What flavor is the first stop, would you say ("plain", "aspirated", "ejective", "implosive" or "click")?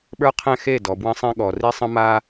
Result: implosive